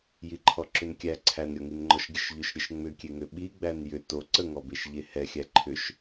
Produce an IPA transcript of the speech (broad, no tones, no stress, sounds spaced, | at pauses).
j i ǃʰ ɔ ǁ ʏ n kʲ æ ǀʰ æ n ɾʲ ɔ ŋ i n ŋ͡ǃ ɔ ʃ ɡʲ ə ʃ ʎ ʏ ʃ ɾʲ ə ʃ ŋ͡m ʏ kʲ e ŋ ʏ ɓ i ɡ͡b æ n j ʏ t o ǀ ə ŋ ɔ b e ʃ ʎ e h ɛ xʲ æ ǃʰ ʏ ʃ